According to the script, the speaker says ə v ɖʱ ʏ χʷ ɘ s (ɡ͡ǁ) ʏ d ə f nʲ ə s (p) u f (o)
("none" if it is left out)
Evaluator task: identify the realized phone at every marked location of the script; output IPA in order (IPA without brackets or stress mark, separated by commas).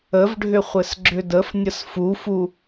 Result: ɡ͡ǁ, f, u